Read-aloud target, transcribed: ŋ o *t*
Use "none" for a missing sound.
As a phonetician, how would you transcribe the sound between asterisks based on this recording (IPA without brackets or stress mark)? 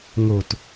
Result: t